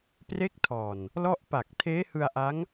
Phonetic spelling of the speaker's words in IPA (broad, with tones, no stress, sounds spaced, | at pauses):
p r e˦˥ k̚ tʰ ɔː˨˩ n | l ɔ˥˩ ʔ p a˨˩ k̚ tʰ eː˦˥ h ɯ˧ a̯ ʔ a˦˥ ŋ